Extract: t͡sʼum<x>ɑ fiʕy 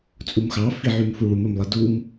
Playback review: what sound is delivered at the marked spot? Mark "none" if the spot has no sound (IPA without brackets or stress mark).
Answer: x